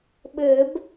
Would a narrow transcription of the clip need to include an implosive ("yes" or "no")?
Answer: yes